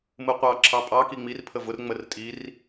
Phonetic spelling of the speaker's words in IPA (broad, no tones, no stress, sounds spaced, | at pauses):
m ɯ qʷ ɑ ǁʰ ɑ pʼ ɑ k i ŋ͡m i r pʰ ə v ʊ r ŋ͡m ə r tʼ i r